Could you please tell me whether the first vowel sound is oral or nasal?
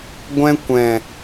nasal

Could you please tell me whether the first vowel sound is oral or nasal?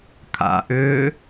oral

